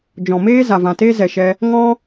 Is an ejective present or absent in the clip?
absent